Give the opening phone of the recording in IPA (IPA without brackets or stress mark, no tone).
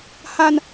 h